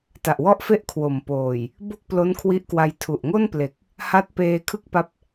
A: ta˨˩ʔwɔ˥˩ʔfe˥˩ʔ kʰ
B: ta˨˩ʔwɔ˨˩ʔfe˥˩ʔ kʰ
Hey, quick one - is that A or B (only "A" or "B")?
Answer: A